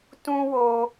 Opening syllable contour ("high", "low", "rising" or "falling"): high